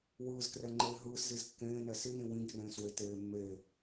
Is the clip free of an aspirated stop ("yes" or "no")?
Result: yes